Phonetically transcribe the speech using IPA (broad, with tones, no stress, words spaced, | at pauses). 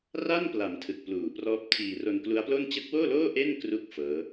ra˥˩npla˩˦m tʰɯ˨˩k̚pluː˨˩prɔː˦˥p̚tʰiː˧ ro˧nklu˦˥a̯plo˥˩n t͡ɕɯ˦˥k̚woː˥˩loː˥˩ ʔe˥˩nkru˦˥k̚ fɤː˦˥